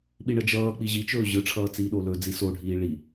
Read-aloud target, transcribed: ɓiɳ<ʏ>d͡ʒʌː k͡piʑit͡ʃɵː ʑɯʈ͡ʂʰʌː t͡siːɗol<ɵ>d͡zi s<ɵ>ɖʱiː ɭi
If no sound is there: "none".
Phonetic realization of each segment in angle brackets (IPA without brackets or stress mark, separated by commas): ə, ɵ, o